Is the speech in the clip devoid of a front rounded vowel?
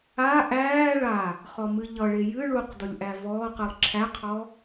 yes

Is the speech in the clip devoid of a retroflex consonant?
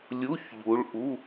no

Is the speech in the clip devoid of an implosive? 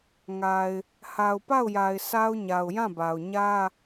yes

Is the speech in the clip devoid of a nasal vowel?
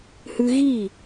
yes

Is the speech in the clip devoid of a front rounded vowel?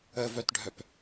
no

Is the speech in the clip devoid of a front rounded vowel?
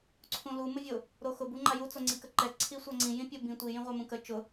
yes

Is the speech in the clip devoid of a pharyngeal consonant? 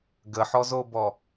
no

